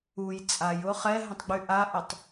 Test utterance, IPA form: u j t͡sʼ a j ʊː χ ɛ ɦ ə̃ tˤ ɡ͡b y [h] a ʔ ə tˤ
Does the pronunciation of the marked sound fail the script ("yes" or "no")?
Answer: yes